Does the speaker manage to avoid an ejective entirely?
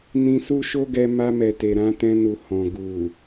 yes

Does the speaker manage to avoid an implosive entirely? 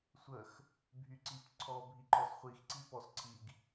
yes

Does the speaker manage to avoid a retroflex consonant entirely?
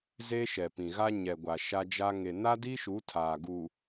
yes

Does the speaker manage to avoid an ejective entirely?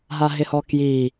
yes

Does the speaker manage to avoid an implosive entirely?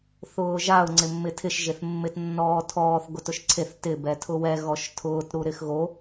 yes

